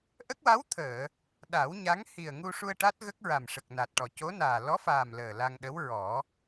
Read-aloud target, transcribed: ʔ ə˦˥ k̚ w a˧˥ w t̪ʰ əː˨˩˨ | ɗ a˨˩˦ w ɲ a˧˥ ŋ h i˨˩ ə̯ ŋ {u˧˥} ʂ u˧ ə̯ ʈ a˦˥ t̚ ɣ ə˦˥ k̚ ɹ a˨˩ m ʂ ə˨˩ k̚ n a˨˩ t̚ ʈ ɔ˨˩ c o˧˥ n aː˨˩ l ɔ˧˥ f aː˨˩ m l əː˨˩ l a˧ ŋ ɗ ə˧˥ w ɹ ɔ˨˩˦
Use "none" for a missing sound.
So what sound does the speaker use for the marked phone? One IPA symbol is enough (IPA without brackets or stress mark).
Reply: u˧